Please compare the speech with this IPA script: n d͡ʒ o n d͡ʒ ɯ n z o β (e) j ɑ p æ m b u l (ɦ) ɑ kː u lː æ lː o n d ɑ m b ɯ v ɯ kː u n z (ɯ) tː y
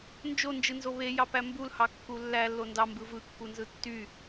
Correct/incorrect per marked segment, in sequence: correct, incorrect: h, correct

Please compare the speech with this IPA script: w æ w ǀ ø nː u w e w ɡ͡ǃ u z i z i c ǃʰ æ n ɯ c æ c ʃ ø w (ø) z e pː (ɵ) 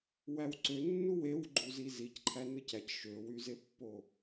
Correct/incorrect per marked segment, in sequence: incorrect: y, incorrect: o

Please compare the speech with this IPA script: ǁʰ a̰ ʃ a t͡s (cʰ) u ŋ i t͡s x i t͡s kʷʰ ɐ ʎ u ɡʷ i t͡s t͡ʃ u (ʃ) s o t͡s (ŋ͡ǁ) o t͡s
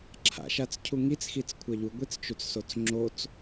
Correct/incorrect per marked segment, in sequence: correct, incorrect: t͡s, correct

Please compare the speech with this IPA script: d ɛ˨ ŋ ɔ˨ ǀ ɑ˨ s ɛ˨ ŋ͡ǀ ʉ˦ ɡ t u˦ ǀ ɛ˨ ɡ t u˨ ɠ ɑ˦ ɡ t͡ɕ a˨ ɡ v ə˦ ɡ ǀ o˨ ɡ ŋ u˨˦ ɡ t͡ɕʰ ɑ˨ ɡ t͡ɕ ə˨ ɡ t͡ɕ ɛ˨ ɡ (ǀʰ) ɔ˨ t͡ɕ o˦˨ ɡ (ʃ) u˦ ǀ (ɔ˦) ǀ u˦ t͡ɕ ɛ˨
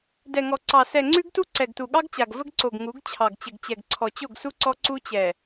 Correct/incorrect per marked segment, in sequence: correct, incorrect: s, correct

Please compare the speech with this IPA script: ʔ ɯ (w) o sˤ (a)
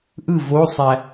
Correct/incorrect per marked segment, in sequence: incorrect: v, incorrect: æ

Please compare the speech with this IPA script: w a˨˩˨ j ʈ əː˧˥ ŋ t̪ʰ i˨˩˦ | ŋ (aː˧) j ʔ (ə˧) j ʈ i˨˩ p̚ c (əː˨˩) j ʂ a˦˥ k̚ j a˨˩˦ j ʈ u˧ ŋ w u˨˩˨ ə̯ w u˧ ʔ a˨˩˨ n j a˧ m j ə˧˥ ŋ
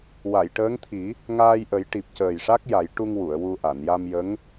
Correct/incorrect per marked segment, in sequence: correct, incorrect: ə˨˩˦, correct

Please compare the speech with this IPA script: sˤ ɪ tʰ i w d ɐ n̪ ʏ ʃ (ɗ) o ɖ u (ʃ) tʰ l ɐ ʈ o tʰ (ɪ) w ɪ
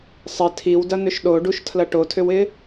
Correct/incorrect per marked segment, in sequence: correct, correct, incorrect: ʏ

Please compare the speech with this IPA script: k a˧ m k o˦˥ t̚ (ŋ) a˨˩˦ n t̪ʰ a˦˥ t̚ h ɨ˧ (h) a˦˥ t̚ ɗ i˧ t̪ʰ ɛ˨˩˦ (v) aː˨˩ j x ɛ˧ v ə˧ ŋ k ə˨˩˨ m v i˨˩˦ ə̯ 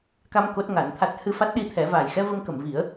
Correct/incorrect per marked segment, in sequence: correct, incorrect: f, correct

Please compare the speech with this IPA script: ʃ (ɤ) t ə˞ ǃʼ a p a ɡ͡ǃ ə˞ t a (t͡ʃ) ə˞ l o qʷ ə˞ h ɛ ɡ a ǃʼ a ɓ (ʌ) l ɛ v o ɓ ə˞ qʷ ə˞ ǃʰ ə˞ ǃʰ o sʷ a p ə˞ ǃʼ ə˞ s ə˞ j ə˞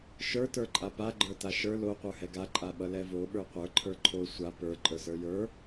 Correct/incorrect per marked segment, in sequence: incorrect: ə˞, incorrect: ʃ, correct

